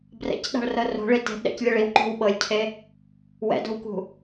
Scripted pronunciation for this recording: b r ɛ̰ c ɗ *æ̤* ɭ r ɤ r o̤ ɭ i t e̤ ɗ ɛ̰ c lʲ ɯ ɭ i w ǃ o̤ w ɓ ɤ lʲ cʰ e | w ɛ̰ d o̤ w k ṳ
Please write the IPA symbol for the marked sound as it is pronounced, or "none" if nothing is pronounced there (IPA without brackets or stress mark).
a̤